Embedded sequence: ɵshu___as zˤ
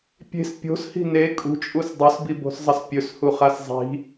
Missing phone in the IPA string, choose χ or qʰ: χ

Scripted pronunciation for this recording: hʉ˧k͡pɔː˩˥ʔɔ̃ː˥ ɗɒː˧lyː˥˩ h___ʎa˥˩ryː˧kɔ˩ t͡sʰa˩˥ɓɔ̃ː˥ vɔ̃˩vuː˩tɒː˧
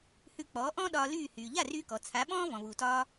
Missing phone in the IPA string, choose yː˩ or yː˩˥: yː˩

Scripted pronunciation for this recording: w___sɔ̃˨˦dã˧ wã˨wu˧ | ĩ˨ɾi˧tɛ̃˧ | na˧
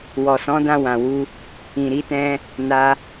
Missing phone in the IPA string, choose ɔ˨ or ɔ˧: ɔ˨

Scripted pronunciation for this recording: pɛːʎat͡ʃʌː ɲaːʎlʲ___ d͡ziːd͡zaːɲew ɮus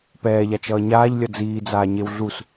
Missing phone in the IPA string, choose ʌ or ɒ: ʌ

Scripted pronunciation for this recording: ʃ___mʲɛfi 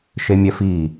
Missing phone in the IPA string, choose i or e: e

